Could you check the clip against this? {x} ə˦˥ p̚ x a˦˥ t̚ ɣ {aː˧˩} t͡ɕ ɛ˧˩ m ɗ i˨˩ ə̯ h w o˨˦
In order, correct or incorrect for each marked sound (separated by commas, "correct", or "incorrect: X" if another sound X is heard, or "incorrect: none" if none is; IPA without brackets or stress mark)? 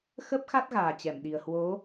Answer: correct, incorrect: aː˨˩